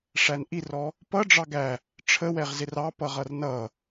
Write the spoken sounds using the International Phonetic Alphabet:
ʂænʔirɔ | pʌ ɖ͡ʐɑɡæ | ʈ͡ʂʰəwɛʁzɪr ɑ pʌʁʌrnʌ

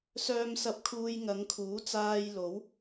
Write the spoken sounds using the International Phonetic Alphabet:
sœː˧msɐ˧p̚kʰuː˧j ŋɐ˨˧ŋkʰuː˨˥ t͡saː˧jlo˨˥w

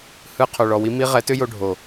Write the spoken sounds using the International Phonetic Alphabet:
hɯ˧ qʰo˨ɭɔ˨wi˦ mi˦ ʁɛ˨˦tʏ˦jo˧ ɖʱo˨

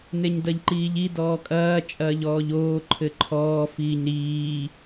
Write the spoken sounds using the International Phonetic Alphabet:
neɲdɐʎǃiːʎi dɔːkʼɐː t͡ʃʼɐːʎɔːʎoː ǃʰɘǃʰɔː fiːɲɾiː

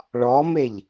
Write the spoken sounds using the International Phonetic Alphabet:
ɭɔmeʎ

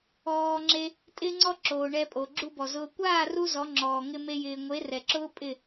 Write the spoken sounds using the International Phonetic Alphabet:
ɔː˧ŋ͡ǁe˧ | tʼɪː˧ŋ͡ǀɔ˧ǁoː˨ ɳɛ˧pʼo˨ ɡ͡ǁu˧bɔ˨ zʊː˧ kʷaː˦˨ru˧ zɔ˨˦ŋ͡ǁɔː˨ ŋɪ˧ me˦jɪː˧ ŋʷe˨˦rɛ˨ǁʊː˦ pʼɪ˦˨

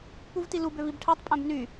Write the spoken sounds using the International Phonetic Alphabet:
puvtilub øvibʈʰætˤ pʼæ̃bny

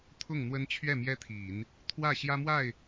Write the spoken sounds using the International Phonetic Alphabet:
t̪ʰʊ˥˩ŋn̪wə˥n t͡ɕʰɥɛ˥˩ mjɛ˥t̪ʰi˨˩˦n | t̪ʰwä˥˩ ɕjä˥mwa˥˩ɪ̯

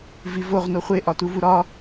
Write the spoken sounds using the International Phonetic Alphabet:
vivoʁ noχʷe ʔɒtuvuɾɒ

